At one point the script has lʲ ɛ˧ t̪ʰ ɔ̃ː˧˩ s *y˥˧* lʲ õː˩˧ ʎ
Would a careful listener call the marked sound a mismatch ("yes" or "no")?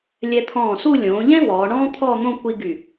yes